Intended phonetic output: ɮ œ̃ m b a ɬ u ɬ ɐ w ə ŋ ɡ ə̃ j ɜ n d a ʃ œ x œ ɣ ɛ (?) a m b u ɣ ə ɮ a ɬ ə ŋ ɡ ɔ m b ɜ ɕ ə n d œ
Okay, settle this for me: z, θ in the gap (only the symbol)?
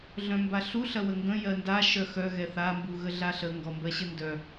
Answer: θ